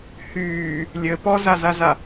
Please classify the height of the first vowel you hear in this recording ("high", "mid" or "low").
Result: high